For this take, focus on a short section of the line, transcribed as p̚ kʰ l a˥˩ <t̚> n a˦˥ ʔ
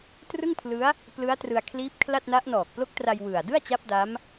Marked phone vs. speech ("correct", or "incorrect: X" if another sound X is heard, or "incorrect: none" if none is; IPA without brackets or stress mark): correct